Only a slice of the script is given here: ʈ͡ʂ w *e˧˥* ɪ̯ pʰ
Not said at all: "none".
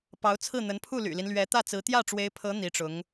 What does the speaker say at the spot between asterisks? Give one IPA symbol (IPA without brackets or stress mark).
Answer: e˧˥